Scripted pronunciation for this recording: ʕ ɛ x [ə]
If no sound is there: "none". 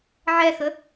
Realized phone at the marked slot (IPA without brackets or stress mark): ə